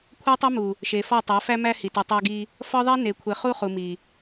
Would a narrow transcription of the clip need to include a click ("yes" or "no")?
no